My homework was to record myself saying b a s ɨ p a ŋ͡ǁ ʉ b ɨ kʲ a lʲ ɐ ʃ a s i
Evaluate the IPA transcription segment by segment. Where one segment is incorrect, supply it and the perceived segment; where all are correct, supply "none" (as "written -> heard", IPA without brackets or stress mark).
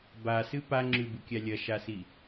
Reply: none